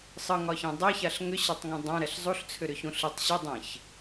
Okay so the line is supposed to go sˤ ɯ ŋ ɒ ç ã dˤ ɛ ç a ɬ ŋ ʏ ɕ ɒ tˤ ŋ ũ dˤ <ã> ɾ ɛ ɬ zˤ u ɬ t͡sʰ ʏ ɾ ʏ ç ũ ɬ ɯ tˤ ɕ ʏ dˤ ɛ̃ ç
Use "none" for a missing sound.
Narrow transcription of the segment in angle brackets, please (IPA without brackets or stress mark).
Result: ã